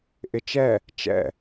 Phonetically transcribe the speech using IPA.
ʔɪt͡ʃɛ | t͡ʃɛ̰

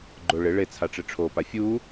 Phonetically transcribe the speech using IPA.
ɡ͡ǃʊ ɭɪ ɭe t͡sʰaʈ͡ʂɪʈ͡ʂʰo pafʲu

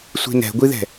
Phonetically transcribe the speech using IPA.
sʷi̤nɛ̤ɡʷiðɛ̤

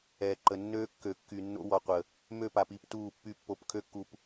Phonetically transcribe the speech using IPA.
ɛː˨ǃə˨ nːøː˦ kːø˨kːy˨nːo̰˦ wɔ˨qʷə˨ | mø˦˨pa˨pi˨˦p tuː˦˨pːy˦ pːo˨˦p kʰø˦kːu˨p

